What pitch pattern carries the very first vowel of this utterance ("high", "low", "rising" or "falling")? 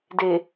low